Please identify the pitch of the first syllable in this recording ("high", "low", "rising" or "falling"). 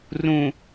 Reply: low